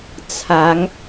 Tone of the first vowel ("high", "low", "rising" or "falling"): rising